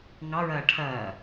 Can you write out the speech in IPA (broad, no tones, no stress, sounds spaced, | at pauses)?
ŋ ɑ ɹ ɐː ʈʰ ɐː